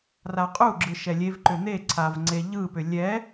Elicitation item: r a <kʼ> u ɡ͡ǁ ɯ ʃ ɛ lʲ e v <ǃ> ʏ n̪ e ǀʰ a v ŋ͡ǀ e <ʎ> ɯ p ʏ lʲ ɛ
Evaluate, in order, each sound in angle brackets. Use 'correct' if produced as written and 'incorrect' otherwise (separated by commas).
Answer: incorrect, correct, correct